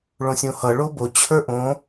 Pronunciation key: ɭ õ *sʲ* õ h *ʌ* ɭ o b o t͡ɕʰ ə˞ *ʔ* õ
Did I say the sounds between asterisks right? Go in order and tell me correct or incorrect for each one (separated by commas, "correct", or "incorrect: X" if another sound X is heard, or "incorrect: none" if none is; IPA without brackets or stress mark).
correct, correct, correct